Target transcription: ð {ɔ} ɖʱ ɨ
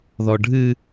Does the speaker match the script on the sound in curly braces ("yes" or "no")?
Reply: yes